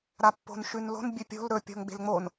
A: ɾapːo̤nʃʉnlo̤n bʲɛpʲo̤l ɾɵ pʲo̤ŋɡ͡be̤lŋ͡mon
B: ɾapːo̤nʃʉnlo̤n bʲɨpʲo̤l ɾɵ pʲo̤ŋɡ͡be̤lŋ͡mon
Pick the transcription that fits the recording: B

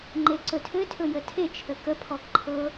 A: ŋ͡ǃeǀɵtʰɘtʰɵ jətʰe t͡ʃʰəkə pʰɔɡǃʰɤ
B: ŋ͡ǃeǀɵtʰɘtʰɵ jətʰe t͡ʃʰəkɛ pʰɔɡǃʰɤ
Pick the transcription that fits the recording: A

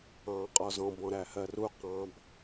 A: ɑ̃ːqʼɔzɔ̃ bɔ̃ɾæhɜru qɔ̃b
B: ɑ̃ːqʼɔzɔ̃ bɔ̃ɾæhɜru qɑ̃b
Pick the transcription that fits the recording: B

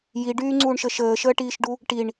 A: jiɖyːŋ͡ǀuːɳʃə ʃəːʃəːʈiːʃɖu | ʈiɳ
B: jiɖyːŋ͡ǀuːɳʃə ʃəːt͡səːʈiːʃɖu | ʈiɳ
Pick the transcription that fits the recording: A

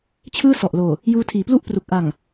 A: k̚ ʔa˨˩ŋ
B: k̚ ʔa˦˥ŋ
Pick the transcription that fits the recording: A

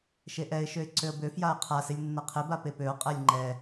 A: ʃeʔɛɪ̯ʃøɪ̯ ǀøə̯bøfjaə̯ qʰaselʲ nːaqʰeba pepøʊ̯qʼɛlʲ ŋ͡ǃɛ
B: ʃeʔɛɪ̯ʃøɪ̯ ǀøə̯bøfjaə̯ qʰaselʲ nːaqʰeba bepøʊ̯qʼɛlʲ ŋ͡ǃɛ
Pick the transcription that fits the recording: A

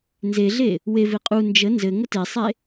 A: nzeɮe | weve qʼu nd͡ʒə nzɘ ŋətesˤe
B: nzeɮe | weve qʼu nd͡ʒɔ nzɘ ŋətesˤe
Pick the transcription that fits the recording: A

